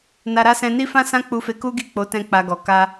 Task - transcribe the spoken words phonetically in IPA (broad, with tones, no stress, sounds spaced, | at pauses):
n a˧ ɾ a˦ s ɛ̃˧ n i˦ f ã˦ s ã˦ k͡p u˧ f e˧ k u˦ ɡ i˦˨ k͡p o˨˦ t ɛ̃˧ k͡p a˧ ɡ ɔ˨ k a˧